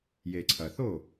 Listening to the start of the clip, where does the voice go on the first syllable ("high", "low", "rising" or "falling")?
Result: low